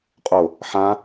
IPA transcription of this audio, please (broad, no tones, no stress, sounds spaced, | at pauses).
qʼ o | ħ ã